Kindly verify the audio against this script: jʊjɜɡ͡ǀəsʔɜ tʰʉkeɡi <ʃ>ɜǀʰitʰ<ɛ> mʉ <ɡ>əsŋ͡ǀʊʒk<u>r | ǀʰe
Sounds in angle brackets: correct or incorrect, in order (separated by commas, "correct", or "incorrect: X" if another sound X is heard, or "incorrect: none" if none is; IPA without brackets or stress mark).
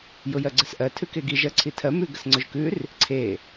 incorrect: ʒ, incorrect: ɜ, correct, incorrect: ʉ